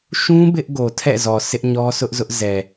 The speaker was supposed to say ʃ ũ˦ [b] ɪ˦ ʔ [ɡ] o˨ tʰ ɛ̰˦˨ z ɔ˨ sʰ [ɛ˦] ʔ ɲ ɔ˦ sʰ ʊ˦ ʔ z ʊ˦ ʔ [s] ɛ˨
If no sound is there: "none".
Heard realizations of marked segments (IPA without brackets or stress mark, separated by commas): b, ɡ, ɪ˦, z